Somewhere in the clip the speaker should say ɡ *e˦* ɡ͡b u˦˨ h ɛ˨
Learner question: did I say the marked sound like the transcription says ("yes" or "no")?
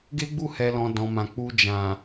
yes